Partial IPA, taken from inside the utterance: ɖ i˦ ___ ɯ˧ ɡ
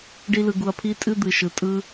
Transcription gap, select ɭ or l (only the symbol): l